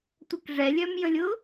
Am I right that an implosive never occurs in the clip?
yes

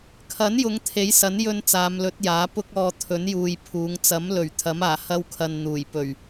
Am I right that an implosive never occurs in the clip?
yes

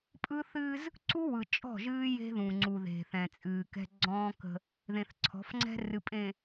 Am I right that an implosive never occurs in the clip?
yes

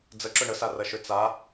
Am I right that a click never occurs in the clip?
no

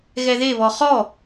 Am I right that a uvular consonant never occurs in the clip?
no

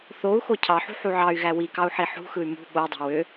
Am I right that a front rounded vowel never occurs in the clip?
no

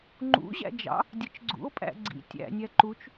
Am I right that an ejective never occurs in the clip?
no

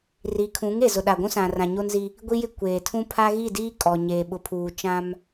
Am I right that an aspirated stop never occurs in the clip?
no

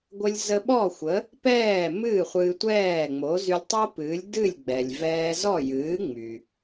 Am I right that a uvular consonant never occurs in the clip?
no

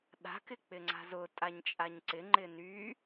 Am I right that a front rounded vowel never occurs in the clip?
no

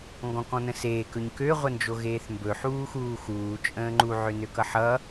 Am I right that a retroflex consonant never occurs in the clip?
yes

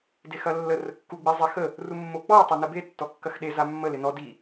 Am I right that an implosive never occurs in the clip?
no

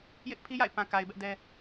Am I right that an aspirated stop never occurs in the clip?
no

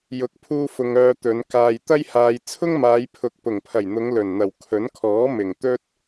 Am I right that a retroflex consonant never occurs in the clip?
yes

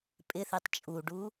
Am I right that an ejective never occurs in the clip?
no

